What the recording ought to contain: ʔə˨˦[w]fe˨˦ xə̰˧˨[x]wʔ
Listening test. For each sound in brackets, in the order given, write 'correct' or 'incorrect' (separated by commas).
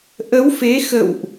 correct, incorrect